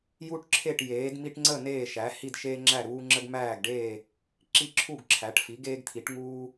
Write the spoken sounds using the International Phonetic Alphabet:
j u˥ ʈ ǁʰ e˥˨ ʈ j eː˩˥ d m i˥ ʈ ŋ͡ǀ ə˥˨ n eː˥˨ ʃ æ˩˥ h i˥˨ d ʃ eː˥ ŋ͡ǁ æ˥˨ ɾ uː˥ ŋ͡ǁ ə˥ ɡ m æː˥˨ ɡ ɖ eː˥˨ | ǁ i˥˨ ǁʰ u˥˨ ɡ ǁʰ æ˩˥ ʈ f i˩˥ ɡ eː˥ ɡ t̪ʰ i˩˥ ʈ ŋ uː˥

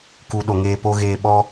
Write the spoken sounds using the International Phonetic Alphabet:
k u˨ ɗ o˨ ŋ eː˧ p o˦ ɣ eː˧ ɓ ɔ˦

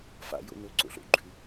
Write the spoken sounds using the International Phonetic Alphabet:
f a̰ j o̰ n ɵ ǀ o̰ ɬ o̰ ɡ͡ǃ ʉ

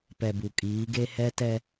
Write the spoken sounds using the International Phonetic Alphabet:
p ɛ˨ b u˨ kʼ iː˨˦ ɡ e˦ h ɛ˦ t ɛ˦

